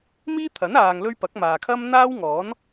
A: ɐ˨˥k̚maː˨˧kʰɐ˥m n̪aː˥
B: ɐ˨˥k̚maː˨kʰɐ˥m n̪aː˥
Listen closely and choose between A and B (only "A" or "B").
B